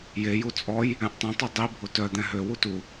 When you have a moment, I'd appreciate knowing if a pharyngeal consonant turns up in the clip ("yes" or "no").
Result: no